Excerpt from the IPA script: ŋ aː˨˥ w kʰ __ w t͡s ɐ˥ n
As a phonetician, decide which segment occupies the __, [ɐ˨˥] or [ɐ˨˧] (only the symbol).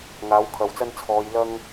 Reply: ɐ˨˧